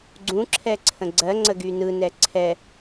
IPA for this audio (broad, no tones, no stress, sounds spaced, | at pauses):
ɡ͡ǀ ũ ǁʰ ɛ ǀʰ ə̃ ɡ͡ǀ ɜ ŋ͡ǀ ə ɡ y n ɯ n ɛ ǀʰ ɛ